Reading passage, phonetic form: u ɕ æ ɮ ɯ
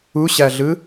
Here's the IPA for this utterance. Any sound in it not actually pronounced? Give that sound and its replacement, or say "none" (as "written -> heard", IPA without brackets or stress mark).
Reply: none